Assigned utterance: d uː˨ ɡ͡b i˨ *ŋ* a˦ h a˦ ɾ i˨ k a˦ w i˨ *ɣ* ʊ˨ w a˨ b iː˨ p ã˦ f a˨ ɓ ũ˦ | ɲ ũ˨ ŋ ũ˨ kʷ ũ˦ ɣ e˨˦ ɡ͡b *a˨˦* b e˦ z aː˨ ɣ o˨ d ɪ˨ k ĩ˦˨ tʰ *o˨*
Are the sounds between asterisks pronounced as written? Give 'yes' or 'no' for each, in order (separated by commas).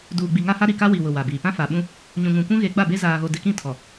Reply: yes, no, no, no